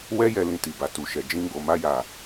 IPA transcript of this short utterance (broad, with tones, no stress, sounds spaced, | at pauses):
w ɛ˦ j ɛ˧ l ĩ˧ t i˨ b a˨ t u˨ ʃ ɛ˨ d͡ʒ ĩ˧ ɡ͡b o˨ m a˧ j a˨